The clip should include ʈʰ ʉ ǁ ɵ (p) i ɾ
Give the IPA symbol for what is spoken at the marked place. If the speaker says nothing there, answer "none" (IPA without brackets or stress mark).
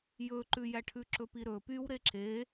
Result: p